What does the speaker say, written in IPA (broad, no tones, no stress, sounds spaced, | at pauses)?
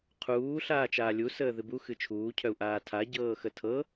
qʰ uː ɬ aː t͡ʃ aː lʲ u s əː ð ɨ b u x ɨ t͡ʃʰ uː cʰ œ u̯ ʔ aː tʰ a ɟ ɤː x ə tʰ ɤ